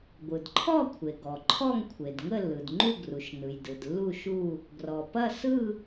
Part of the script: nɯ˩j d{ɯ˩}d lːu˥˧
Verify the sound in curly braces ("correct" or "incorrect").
correct